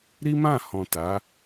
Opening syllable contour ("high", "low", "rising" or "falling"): high